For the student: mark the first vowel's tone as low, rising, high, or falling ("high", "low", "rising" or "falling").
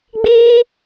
high